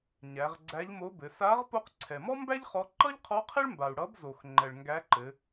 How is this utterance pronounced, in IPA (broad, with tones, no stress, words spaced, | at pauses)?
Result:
ɲæ˩˧ʁɡ͡ǀæ˧˥ʎmo˧˥bɘ˩˧ sa˧˥ʁ po˧qǀʰɛ˩mɔ˥mbæ˥ʎ χɔ˧˥ ǃʌ˥ʎqʰɔ˧˥ qʰɘ˥ɭmba˩u̯ ɽʌ˧˥b zo˩xŋ͡ǃɛ˩ɭ ŋɡæ˧˥ǃɘ˩˧